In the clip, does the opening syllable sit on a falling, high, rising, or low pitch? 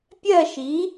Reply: falling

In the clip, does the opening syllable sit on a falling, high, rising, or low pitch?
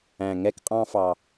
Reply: low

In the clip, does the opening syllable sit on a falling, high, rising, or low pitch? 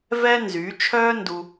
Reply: high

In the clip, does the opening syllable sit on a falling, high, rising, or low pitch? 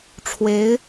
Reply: rising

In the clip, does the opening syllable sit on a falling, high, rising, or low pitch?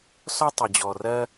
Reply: high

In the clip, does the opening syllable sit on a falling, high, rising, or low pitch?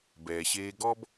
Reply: low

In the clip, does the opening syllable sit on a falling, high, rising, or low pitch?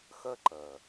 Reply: high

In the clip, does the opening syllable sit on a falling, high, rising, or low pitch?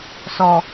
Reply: low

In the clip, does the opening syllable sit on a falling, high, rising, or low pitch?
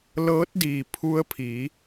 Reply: rising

